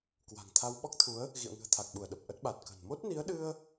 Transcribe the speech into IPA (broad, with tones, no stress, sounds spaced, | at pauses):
k w a̤˨˩ ŋ t̪ʰ a˧ w ɓ ɔ˦˥ k̚ t̪ʰ u˨˦ ə̯ | ɣ ḭ˧˨ ə̯ ŋ ɨ̤˨˩ ə̯ t̪ʰ a˨˩ k̚ ɓ u˧˩ ə̯ ɗ ə˨˩ p̚ ʔ ə˦˥ t̚ ɓ a˨˩ t̚ k ə̤˨˩ n m o˦˥ t̚ n i˨˦ ə̯ ɗ ɨ˧ ə̯